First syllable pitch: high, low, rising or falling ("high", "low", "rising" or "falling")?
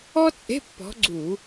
high